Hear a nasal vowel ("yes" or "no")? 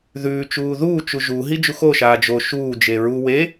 no